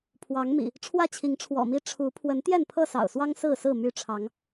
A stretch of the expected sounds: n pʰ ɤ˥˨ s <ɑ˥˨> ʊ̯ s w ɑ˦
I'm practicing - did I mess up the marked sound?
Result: yes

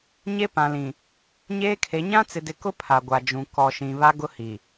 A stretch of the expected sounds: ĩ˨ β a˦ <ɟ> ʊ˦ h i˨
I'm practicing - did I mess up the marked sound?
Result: yes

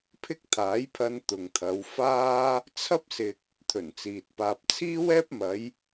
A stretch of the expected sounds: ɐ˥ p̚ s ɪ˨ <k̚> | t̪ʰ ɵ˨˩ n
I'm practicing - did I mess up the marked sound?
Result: no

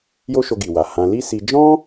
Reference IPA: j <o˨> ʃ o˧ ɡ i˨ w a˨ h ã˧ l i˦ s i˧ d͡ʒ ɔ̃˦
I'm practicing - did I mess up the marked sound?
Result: yes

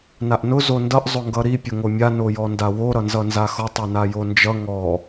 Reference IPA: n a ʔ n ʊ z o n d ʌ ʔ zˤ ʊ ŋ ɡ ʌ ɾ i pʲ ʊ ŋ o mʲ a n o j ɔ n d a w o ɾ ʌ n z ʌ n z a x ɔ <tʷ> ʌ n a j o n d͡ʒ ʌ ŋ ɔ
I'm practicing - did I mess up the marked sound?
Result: yes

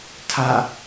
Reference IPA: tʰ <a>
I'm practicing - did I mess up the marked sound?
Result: no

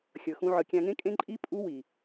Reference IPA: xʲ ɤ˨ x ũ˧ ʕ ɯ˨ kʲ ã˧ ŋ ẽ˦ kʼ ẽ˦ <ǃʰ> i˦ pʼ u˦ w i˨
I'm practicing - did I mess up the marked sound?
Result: yes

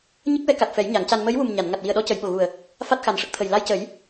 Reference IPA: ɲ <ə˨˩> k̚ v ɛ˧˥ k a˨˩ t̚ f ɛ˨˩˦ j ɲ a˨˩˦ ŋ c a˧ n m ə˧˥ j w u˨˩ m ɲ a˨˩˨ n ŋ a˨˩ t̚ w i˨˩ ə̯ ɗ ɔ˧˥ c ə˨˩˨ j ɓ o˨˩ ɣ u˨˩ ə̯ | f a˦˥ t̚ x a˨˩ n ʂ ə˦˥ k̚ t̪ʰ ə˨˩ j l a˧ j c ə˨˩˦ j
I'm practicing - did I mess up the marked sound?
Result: yes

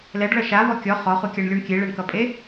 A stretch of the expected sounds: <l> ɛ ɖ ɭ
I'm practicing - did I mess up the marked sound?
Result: no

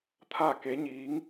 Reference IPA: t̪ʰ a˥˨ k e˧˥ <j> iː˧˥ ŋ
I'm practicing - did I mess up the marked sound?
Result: yes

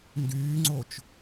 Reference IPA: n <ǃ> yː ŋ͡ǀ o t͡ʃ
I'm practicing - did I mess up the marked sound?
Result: yes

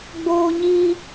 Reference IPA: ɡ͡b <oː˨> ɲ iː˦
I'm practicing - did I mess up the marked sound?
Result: yes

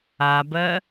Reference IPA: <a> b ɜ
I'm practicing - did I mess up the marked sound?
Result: no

